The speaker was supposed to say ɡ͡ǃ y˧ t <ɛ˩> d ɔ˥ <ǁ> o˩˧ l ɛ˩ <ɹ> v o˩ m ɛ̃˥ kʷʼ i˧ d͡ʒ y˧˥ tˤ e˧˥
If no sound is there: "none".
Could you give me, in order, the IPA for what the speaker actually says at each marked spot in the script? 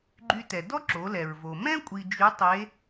ɛ˩, ǁ, ɹ

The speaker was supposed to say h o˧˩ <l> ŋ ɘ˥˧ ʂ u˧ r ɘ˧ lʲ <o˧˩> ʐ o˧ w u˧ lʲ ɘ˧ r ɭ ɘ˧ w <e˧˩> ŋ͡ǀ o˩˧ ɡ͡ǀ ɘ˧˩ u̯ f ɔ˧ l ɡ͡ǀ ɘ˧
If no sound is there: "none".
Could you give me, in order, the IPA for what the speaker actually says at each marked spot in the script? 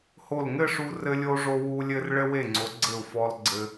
l, o˧, e˧˩

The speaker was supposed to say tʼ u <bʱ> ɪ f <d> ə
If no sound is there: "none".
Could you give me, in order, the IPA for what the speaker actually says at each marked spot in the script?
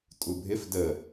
bʱ, d

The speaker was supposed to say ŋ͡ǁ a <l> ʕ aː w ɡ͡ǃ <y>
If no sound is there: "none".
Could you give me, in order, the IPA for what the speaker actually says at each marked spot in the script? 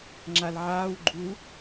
l, u

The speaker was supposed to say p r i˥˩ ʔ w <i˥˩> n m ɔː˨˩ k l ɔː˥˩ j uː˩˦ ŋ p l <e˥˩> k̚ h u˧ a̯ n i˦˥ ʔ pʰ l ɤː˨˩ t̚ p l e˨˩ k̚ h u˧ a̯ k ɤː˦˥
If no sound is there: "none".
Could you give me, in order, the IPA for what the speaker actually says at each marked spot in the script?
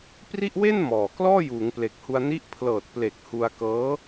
e˥˩, e˨˩

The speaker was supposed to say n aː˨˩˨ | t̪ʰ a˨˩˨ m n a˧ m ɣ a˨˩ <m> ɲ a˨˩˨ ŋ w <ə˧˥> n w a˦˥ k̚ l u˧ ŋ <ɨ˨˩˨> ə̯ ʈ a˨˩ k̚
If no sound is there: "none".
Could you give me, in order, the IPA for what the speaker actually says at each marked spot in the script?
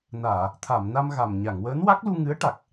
m, əː˧˥, ɨ˧˥

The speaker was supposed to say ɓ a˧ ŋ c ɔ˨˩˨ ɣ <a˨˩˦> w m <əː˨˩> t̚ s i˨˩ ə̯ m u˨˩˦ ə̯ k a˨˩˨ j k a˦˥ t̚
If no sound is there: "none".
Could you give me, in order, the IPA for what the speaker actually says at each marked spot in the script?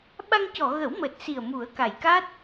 ə˨˩˦, əː˨˩

